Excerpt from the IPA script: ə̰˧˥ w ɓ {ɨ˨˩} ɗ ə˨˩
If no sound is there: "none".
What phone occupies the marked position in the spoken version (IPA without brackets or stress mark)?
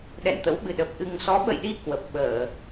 ɨ˨˩